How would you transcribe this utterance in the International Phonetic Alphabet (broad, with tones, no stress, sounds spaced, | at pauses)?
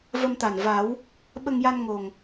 v ə˧ m t̪ a˨˩ n v a˨˩˦ w | ɓ ə˧ ŋ j a˧ n ŋ o˨˩ ŋ